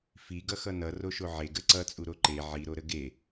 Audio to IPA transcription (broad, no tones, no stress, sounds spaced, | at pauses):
f i ɡ ʌ x ʌ n ʌ r o ʃ o ʕ e ɡ ə ǀ ʌ t͡sʼ u ɾ o ǃ e ʕ i ɾ o ɾ ə ɡ e